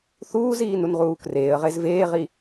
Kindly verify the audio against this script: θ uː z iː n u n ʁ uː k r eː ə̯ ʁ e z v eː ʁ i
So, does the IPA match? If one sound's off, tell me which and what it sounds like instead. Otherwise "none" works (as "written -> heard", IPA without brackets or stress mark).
none